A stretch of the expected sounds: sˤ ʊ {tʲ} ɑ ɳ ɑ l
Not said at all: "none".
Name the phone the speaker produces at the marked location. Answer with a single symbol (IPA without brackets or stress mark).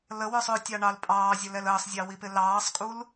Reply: tʲ